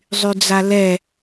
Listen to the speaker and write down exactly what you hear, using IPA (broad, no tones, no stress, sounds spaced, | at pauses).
zˤ y d͡z a l ɛ